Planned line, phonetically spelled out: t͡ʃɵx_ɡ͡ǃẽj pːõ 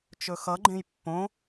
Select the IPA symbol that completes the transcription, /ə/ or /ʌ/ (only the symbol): ʌ